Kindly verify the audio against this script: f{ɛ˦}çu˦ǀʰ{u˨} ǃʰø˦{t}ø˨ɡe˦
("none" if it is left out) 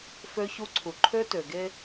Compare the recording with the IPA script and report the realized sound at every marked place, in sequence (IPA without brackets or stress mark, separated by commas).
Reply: ø˦, u˨, t